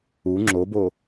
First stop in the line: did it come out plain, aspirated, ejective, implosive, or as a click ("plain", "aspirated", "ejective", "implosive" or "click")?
click